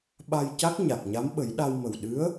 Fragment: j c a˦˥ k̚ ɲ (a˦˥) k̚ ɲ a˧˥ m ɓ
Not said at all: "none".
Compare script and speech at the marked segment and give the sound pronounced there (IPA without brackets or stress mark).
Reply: a˨˩